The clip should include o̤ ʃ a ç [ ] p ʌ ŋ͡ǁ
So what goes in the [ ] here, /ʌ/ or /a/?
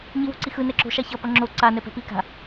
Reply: ʌ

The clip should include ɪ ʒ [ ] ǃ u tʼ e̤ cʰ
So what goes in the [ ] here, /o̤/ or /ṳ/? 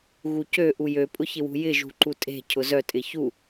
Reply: ṳ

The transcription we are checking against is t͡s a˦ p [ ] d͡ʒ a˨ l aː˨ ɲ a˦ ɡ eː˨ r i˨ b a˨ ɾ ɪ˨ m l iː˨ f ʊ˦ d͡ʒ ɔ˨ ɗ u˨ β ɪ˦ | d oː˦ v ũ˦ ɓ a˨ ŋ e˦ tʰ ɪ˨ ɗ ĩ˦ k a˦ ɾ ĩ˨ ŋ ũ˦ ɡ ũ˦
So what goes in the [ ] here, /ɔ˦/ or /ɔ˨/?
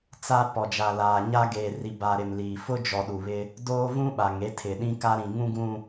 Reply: ɔ˨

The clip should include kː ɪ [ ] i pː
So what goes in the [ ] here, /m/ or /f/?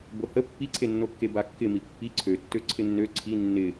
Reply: m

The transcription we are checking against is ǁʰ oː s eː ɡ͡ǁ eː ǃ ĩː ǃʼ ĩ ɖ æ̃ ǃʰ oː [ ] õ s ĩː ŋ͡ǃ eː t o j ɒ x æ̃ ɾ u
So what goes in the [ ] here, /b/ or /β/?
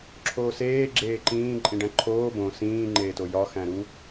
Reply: b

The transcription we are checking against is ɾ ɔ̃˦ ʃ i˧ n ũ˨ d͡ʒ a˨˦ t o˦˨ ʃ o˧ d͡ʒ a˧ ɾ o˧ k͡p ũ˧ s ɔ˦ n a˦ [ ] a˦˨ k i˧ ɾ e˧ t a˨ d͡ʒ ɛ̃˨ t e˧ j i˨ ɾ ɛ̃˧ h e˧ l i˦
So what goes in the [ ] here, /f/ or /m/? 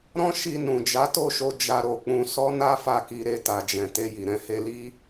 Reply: f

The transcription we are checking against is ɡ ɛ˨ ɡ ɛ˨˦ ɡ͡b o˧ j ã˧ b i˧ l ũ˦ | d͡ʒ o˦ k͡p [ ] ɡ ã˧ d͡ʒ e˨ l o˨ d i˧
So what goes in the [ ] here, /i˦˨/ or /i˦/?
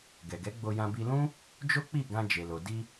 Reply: i˦˨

